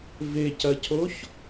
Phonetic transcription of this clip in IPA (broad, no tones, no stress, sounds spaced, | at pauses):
v e c ɐ cʰ o ç